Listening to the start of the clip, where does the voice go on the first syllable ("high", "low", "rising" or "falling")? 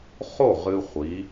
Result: falling